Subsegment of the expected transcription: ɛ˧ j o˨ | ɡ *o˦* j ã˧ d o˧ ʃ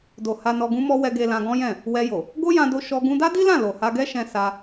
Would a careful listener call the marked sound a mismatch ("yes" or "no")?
no